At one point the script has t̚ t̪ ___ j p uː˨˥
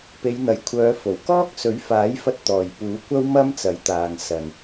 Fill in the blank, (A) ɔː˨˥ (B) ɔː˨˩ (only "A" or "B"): B